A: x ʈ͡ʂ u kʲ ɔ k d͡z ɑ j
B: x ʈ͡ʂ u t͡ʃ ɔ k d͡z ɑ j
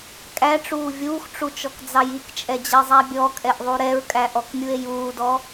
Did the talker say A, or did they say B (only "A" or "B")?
B